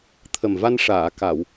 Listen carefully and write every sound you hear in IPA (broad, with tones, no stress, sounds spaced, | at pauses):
t̪ʰ ə˨˩ m v a˧ n ʂ aː˨˩˨ k a˨˩˨ w